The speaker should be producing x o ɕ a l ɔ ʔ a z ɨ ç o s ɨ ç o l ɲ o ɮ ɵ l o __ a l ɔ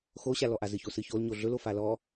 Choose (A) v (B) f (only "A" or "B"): B